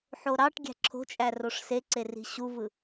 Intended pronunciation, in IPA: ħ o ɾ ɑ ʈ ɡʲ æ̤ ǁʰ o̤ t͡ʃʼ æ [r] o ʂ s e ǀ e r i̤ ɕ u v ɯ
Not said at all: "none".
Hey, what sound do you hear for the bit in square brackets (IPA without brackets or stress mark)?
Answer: r